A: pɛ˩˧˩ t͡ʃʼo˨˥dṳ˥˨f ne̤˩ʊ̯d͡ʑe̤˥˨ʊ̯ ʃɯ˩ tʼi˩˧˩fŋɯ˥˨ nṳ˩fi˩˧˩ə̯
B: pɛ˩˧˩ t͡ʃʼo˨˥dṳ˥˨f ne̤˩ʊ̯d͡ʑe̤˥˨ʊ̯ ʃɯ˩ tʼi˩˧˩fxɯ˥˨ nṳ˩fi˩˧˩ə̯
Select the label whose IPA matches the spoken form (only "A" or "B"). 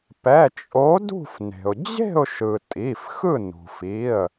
B